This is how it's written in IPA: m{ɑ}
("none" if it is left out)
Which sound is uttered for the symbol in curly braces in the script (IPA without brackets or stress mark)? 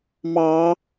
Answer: ɑ